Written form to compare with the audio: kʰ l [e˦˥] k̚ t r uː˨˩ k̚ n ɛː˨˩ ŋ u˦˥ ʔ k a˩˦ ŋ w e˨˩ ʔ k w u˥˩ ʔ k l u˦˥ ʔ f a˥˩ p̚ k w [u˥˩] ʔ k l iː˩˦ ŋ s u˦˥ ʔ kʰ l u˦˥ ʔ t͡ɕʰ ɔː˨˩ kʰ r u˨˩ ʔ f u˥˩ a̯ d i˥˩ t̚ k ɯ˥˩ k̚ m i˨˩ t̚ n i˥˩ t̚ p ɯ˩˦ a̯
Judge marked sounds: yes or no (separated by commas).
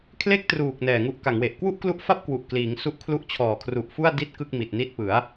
no, no